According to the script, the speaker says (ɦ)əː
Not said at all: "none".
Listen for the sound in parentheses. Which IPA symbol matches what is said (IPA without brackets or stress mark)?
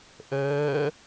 ʔ